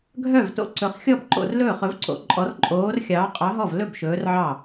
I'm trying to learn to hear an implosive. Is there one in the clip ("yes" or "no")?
no